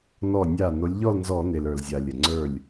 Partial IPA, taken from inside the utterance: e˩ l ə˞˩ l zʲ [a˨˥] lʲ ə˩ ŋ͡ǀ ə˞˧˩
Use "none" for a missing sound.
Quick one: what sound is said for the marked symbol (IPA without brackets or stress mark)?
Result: a˩